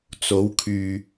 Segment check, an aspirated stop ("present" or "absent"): present